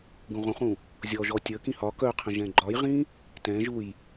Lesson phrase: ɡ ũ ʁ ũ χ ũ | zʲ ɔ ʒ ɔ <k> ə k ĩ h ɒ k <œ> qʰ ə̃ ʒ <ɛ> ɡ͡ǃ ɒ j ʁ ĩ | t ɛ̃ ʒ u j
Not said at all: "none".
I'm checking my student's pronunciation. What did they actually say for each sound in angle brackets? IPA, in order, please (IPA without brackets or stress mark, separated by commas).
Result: tʲ, œ, ɛ̃